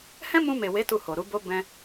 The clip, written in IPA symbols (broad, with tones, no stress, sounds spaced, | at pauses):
h ɛ̃˦ m ũ˧ m e˨ w e˨˦ t u˦˨ h o˨ ɾ u˨˦ b o˦ b ɛ̃˦